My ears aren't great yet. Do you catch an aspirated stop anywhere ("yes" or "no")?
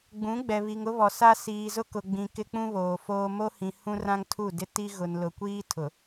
yes